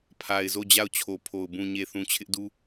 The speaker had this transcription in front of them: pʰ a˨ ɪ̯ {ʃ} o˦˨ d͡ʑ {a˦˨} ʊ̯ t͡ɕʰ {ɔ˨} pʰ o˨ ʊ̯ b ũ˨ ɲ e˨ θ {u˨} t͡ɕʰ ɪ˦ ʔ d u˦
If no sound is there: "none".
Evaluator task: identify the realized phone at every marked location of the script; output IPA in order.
z, a˦˨, o˨, ũ˨

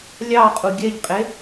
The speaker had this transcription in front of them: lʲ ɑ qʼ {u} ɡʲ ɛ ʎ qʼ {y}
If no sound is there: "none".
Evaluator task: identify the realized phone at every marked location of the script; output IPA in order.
u, e

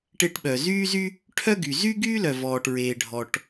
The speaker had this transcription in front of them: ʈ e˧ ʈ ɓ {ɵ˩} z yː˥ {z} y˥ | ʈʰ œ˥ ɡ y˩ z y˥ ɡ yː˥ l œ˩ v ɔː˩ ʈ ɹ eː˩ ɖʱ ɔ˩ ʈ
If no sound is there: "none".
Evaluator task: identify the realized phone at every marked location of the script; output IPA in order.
œ˩, z

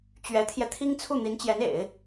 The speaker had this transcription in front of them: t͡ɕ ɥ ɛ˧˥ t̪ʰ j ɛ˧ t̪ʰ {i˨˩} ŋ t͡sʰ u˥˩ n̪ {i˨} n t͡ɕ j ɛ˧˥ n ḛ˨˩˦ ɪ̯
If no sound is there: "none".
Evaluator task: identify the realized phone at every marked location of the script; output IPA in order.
i˥, i˧˥

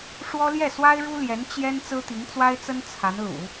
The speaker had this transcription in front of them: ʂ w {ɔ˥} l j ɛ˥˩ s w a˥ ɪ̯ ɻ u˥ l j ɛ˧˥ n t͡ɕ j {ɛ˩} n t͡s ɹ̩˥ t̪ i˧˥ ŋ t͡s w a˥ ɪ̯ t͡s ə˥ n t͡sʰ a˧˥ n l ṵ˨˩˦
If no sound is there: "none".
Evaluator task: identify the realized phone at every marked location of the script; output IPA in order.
ɔ˥, ɛ˥

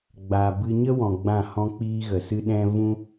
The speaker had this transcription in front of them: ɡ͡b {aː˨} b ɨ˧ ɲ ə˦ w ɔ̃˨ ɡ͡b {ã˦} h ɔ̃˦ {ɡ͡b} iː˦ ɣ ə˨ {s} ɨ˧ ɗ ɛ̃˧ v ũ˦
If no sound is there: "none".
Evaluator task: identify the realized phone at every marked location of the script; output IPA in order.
aː˨, ã˦˨, k͡p, s

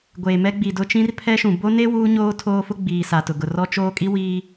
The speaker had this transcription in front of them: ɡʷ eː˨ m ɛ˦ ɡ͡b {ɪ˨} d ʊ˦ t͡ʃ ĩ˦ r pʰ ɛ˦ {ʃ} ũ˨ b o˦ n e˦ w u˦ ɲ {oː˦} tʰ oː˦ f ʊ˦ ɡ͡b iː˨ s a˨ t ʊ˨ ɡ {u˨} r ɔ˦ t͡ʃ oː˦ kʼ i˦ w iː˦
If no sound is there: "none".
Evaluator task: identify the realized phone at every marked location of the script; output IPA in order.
i˨, ʃ, oː˦, ʊ˨

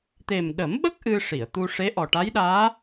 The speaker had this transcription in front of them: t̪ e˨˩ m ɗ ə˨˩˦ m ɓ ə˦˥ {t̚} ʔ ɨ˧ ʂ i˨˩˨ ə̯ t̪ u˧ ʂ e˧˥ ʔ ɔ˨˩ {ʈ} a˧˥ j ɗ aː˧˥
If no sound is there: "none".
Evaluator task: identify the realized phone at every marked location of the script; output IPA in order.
k̚, ʈ

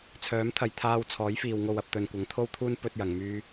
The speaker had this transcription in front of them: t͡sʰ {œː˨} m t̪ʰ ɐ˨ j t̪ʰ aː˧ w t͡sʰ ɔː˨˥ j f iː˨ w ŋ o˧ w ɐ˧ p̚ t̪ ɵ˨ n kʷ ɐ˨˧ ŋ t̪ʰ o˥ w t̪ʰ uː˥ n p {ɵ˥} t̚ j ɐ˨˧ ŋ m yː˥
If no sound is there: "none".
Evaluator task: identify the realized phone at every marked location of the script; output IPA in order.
œː˨˥, ɵ˥

